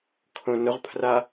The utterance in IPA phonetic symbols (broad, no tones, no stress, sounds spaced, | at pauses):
kʰ õ n ʊ ʁ pʰ r a